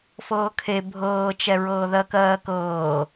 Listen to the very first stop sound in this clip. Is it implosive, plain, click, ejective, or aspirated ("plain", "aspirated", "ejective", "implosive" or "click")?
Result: aspirated